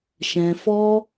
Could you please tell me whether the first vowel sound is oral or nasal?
nasal